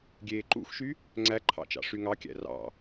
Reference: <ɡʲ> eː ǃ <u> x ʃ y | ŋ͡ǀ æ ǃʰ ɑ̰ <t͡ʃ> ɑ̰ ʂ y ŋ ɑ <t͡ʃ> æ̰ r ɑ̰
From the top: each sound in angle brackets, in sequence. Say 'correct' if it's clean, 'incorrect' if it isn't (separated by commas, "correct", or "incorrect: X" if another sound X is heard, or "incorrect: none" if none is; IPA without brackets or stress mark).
correct, incorrect: ṵ, correct, incorrect: kʲ